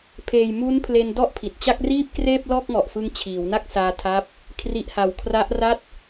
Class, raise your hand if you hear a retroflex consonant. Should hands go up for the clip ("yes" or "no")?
no